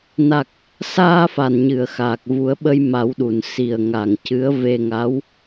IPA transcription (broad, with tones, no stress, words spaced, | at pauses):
na˨˩k̚ | saː˧ fa˨˩nɲɨ˨˩˨ə̯ xaː˨˩k̚vu˨˩˦ə̯ɓə˧j ma˨˩˦wɗu˨˩˨n si˨˩ə̯ŋa˨˩ŋ cɨ˧˥ə̯ve˧ŋa˧˥w